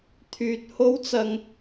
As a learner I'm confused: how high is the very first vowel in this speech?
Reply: high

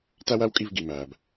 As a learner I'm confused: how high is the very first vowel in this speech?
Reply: low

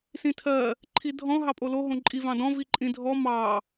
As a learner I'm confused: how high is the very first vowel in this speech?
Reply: high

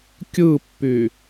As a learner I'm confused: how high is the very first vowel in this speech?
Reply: high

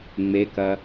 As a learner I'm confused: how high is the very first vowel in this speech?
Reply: mid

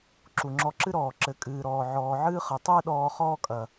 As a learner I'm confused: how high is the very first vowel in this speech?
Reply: high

